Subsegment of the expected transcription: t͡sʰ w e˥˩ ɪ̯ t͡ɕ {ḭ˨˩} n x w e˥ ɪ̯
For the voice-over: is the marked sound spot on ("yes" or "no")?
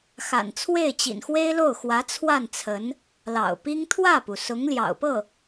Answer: yes